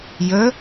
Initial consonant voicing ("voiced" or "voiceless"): voiced